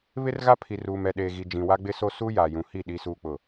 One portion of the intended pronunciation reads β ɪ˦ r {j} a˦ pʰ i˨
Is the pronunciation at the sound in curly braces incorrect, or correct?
incorrect